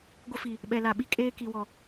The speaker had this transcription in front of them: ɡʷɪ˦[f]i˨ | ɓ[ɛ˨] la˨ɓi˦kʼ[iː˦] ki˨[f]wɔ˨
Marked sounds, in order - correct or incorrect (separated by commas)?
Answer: correct, correct, incorrect, incorrect